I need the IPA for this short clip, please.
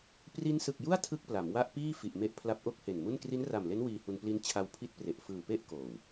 pri˦˥nsɯ˨˩k̚ju˥˩a̯ tʰɯ˥˩k̚pla˩˦mwa˥˩ʔpiː˥˩ fi˨˩ʔme˦˥ʔ pʰla˦˥p̚ʔo˥˩k̚he˨˩nmu˥˩n kri˦˥nra˨˩mle˦˥n wiː˧hu˧n pli˦˥n t͡ɕʰa˧wpʰi˦˥t̚pre˨˩ʔ fɯː˨˩pe˥˩ʔ koː˨˩w

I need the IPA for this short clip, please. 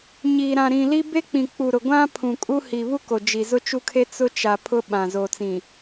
ɲi˨ɾã˨ ɾĩ˨li˦ be˦k͡pĩ˨k͡pu˨ ɾʊ˨ɡʷã˦ pʰũ˨kʼu˦ hi˨βu˦ko˨ d͡ʒi˨zʊ˦t͡ʃu˦kʰe˦ t͡sʊ˦t͡ʃa˨ pʰʊ˦ɓã˨ zo˨t͡sĩ˨

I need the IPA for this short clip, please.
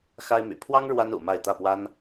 xa˥ɪ̯my̰˨˩ pʰwɑ˥ŋ ɻwa˥nṵ˨˩ ma˥˧ɪ̯ t̪ä˥˩pwa˥n

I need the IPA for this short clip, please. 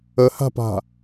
əha̤pa̤

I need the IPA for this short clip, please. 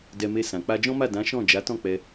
dɛ˧me˧sã˨ k͡pa˧d͡ʒɔ̃˦ma˦˨ dã˨˦ʃɔ̃˦˨ d͡ʒa˨˦tɔ̃˦˨ k͡pɛ˧

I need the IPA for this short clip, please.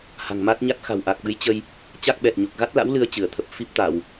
ha̤˨˩ŋma˦˥t̚ɲa˦˥t̚ xa̤˨˩wʔa˨˩k̚ɓɨ˨˦j t͡ɕə˧j | t͡ɕa˦˥k̚ɓɛ˨˩t̚ɲo˨˩k̚ ɣa˦˥t̚la̰˧˥w lɨ˧ə̯t͡ɕɨ˧˩ə̯t̪ʰə˨˩p̚ fi˦˥p̚t̪a˧˩˨w

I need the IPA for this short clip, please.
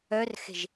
œrxe̤ʒ

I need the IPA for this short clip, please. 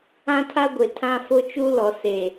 ã˦tʰa˦ɡʷe˨ tʰã˦fʊ˦t͡ʃu˦ lɔ˨se˨

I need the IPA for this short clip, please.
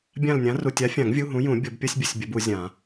bʲã˦˨lnʲã˨˥ru˨ tʲa˨˥fʲã˨˩˦ŋ vʲu˧˥˧ɦũ˨˥jũ˨˩˦ bʲo˨˩˦bpʲʌ˧˥˧sʲbʲu˨sʲ bʲʌ˨˥bu˨˩˦zʲã˨˩˦

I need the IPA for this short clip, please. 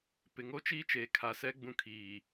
pɪ˨ŋo˦t͡ʃiː˦ t͡ʃeː˨kʰa˨sɛ˦ɡ͡bũ˦˨ kʰiː˨

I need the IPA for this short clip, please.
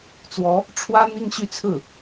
t͡swɔ˧˥ | ʈ͡ʂʰwä˥ n̪i˥ŋɕy˥t͡sʰɹ̩˥˩

